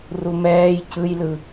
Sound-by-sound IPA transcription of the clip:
rumɛːj cʰɯjlɯ

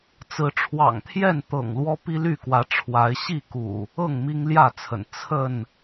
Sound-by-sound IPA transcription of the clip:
t͡sɹ̩˨˦ʈ͡ʂʰwɑ̰˨˩ŋt̪ʰjɛ˥˨nt̪ɤ̰˨˩ŋ lwɔ˦pi˦ly˥˨kwä˨˦ ʈ͡ʂʰwa˨˦ɪ̯ ɕi˥˨kṵ˨˩ | ɤ˥˨ŋ mi˦ŋljä˥˨t͡sʰə̰˨˩n t͡sʰə˥˨n

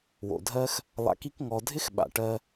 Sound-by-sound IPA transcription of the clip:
wo̰˨dʱɜ˦x | lˠa̰˧ki˦kŋɔ˧ dʱɪ˦xɓa̰˨ʈɜ˧

